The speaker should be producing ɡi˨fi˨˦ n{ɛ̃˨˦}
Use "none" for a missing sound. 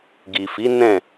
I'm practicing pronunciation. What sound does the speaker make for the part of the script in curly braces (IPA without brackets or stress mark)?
ɛ̃˦˨